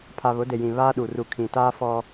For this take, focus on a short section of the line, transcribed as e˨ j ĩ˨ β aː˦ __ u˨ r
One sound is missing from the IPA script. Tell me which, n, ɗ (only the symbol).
ɗ